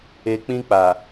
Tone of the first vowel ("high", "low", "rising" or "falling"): low